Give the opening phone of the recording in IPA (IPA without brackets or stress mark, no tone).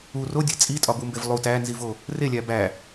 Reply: u